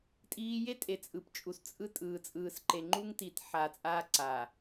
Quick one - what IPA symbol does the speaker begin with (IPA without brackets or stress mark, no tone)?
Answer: tʼ